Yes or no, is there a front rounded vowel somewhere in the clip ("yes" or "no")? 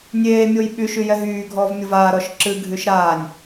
yes